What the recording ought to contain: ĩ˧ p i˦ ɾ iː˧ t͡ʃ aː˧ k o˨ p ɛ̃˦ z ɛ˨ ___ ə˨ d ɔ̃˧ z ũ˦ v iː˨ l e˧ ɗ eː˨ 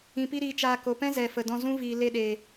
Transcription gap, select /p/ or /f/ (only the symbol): f